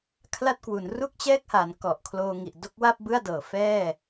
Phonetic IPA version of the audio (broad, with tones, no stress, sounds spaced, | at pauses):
kʰ l a˥˩ t̚ k w u˩˦ n r u˥˩ k̚ t͡ɕ ɛː˥˩ k̚ h a˩˦ n k ɔ˨˩ ʔ kʰ l oː˧ ŋ i˨˩ ʔ d o˥˩ k̚ w a˥˩ p̚ b ɯ˥˩ a̯ d ɤː˩˦ f ɛː˥˩